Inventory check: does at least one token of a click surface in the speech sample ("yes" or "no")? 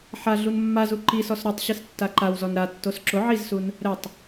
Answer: yes